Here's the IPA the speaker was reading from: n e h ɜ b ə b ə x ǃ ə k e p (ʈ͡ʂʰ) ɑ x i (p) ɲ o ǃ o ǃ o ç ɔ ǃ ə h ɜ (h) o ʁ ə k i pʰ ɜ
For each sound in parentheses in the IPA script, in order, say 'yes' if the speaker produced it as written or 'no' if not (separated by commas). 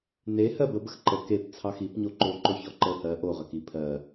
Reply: no, yes, no